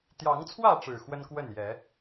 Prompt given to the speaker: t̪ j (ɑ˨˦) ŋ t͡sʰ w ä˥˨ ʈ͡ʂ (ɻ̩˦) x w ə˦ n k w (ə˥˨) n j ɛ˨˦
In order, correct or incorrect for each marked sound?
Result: correct, incorrect: ɻ̩˨˩, correct

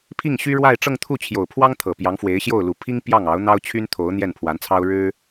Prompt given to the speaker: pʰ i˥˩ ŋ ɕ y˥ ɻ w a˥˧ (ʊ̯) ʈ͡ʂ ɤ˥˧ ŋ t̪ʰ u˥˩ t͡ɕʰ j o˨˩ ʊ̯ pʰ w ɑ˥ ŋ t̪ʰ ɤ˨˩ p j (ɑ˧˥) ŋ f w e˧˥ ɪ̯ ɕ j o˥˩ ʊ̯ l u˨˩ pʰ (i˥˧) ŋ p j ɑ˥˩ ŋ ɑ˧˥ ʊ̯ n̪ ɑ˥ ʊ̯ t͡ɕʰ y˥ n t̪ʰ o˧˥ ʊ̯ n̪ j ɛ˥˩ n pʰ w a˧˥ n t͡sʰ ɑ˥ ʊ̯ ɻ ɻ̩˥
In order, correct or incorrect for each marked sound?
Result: incorrect: ɪ̯, correct, incorrect: i˥

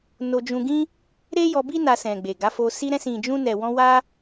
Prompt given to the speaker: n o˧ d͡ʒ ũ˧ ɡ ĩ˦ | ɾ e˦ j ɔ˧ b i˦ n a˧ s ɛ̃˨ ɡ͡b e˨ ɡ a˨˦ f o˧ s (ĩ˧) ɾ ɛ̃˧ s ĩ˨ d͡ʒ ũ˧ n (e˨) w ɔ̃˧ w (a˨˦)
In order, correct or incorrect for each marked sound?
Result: incorrect: i˧, incorrect: ɛ˨, incorrect: a˦

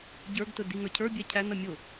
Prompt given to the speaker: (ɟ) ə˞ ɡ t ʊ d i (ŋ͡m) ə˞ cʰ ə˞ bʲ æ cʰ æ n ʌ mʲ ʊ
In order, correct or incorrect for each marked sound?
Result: correct, incorrect: ŋ

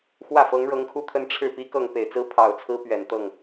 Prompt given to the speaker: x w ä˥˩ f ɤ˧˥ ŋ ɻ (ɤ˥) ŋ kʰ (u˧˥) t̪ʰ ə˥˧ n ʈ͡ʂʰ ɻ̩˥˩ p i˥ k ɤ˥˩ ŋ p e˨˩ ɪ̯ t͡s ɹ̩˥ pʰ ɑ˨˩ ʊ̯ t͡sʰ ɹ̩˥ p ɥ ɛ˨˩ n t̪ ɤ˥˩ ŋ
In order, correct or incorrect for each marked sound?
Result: incorrect: ɤ˧˥, incorrect: u˥˧

